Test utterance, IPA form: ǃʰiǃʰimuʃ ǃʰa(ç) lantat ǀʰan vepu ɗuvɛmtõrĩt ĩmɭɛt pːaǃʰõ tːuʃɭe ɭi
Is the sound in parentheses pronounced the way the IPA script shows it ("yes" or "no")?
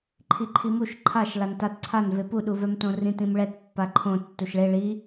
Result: no